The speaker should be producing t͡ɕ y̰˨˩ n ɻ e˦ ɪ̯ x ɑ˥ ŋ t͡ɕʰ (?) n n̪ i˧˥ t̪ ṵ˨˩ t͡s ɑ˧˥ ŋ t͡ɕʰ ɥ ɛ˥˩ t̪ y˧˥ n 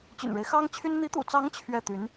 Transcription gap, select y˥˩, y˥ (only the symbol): y˥